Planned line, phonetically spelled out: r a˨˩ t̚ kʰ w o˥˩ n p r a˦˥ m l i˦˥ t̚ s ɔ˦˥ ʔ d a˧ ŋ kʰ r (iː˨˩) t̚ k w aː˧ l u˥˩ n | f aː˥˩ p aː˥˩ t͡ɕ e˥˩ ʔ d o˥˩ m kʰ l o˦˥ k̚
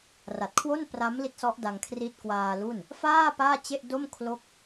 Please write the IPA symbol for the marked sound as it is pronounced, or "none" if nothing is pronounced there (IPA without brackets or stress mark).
iː˦˥